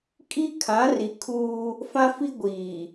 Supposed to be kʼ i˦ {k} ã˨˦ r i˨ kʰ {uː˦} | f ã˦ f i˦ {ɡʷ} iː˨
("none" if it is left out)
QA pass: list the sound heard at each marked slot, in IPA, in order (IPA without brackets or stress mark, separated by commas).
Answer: kʰ, uː˦, ɡʷ